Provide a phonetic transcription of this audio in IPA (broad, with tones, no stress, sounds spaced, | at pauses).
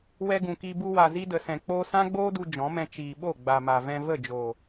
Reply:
w ɛ˧ ɡ ũ˨ k i˧ b u˧ w a˨ z i˧ d ə˨ s ɛ̃˨ k͡p oː˧ s ã˦ ɡ͡b oː˦ d u˧ d͡ʒ ɔ̃˨˦ m ɛ̃˧ t͡ʃ iː˨ ɓ o˦˨ ɡ͡b a˨ m a˨ v ɛ̃˧ v ə˦˨ d͡ʒ oː˨